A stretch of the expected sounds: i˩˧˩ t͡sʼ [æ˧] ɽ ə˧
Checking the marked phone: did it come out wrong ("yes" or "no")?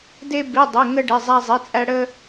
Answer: no